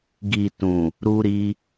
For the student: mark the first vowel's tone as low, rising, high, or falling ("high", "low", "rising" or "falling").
low